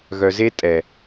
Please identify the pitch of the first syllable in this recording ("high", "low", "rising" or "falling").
low